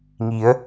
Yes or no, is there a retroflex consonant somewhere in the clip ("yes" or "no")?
no